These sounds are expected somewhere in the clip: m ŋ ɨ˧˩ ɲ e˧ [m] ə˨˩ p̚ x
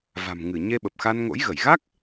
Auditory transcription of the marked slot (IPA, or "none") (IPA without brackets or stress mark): ɓ